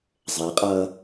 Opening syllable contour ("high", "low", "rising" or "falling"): rising